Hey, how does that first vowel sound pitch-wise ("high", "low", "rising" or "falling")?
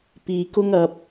low